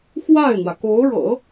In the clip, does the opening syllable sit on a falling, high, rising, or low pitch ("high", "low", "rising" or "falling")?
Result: falling